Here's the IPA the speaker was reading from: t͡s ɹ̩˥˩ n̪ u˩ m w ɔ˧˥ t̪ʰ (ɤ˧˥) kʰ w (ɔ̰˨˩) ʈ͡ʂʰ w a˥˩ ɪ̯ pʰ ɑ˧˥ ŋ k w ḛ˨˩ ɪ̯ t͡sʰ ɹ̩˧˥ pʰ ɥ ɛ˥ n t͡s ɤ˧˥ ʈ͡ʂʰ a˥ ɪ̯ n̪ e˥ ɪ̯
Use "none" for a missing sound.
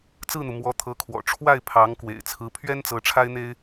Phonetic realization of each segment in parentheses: ɤ˧˥, ɔ̰˨˩

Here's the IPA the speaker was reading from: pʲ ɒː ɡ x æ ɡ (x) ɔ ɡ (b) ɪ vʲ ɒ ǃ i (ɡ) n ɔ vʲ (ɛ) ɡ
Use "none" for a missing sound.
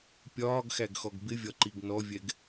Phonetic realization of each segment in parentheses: x, b, ɡ, ɛ

